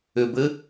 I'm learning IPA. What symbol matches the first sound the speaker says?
ʏ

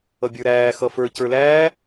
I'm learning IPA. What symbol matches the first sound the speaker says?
ʌ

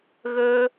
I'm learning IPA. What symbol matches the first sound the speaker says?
ɣ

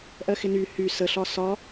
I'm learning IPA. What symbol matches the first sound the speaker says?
ʔ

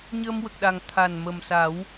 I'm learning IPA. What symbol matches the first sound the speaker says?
ɲ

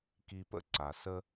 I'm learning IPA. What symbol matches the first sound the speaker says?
k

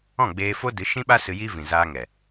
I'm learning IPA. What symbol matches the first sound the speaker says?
ɔ̃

